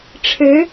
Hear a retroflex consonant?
yes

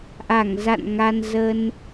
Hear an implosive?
no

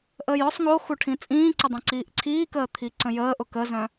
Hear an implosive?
no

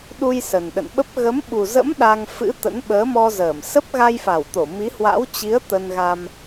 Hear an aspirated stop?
no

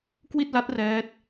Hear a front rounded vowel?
no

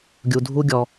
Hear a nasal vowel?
no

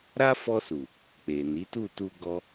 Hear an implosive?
no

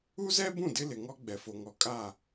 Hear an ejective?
yes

